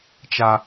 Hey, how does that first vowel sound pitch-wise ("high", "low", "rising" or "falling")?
high